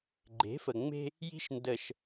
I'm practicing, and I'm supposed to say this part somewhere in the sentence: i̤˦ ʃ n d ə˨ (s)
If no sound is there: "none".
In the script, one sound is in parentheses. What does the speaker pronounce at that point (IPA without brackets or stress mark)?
ʃ